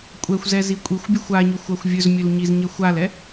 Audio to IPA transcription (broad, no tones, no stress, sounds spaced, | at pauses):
kʷʼ ɛ xʷ z ɛ z i kʷʼ i xʷ bʲ ɵ xʷ a ɲ ɵ xʷ a xʷ vʲ ɵ z mʲ ɵ l ɲ i z ɲ ɛ xʷ a l ɛ